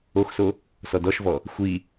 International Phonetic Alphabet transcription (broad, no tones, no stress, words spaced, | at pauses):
oxso | sɔdɔʃvɔ | xʷi